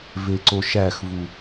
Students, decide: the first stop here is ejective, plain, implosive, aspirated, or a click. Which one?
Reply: click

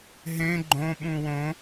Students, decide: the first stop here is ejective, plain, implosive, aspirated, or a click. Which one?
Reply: click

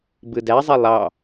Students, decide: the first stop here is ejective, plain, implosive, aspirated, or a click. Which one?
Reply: plain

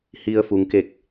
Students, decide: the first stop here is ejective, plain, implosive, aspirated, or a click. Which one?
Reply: plain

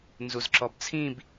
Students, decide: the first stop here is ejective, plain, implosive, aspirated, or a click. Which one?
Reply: click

